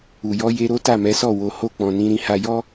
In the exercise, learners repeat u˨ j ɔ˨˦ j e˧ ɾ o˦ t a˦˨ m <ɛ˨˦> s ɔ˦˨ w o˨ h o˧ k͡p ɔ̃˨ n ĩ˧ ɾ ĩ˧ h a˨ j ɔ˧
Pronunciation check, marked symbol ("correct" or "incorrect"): correct